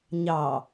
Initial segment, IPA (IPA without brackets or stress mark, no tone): ɲ